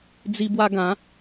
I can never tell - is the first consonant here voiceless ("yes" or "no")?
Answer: no